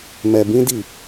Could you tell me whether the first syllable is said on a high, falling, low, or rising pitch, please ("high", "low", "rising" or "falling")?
low